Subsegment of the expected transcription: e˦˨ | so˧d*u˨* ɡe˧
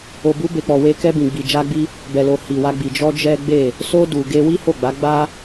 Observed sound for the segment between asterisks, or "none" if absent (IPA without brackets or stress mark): u˨